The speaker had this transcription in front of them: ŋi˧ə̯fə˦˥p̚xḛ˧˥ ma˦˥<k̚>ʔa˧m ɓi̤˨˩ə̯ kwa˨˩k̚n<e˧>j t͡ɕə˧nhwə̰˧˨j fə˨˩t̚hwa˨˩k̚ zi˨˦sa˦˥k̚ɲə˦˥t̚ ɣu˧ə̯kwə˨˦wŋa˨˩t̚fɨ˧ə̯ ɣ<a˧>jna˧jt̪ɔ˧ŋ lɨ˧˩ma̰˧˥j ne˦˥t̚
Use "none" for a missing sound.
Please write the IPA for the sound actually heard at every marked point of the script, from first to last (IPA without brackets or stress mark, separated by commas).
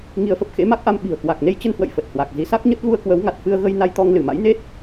k̚, e˧, ə˧